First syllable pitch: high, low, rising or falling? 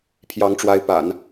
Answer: rising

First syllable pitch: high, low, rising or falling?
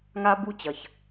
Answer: high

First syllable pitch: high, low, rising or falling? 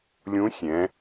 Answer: rising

